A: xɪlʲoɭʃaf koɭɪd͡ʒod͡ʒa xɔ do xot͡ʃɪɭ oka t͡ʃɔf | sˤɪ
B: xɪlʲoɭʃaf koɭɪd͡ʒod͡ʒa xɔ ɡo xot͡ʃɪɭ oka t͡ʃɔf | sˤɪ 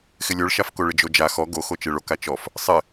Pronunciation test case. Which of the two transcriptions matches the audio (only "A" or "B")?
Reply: B